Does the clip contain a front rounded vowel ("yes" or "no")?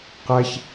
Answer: no